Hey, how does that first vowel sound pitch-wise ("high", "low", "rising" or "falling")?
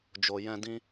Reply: low